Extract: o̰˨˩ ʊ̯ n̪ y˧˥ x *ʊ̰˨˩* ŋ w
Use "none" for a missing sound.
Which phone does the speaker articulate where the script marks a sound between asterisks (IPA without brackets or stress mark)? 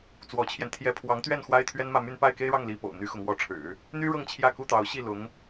ʊ˧˥